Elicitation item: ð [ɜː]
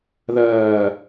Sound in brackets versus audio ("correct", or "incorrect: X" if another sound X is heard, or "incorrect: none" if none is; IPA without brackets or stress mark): correct